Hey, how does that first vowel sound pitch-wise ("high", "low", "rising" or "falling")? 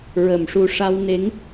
low